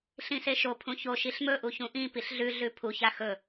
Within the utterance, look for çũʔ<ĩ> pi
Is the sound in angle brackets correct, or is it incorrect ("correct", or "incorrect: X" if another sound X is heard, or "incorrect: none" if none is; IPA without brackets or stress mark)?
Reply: correct